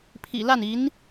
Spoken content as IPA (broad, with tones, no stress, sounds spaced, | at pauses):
pʰ ḭ˨˩ l a˥˩ n i˧˥ n